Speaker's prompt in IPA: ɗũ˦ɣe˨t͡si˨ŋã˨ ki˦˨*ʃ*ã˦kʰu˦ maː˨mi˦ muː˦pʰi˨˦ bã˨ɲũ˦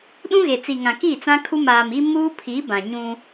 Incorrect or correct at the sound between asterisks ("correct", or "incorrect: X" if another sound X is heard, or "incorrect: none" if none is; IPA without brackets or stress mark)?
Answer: incorrect: t͡s